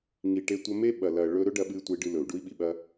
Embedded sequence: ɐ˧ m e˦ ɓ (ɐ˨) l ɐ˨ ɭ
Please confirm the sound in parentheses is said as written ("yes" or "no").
yes